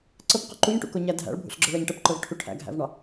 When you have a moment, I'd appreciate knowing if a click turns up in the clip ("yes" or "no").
yes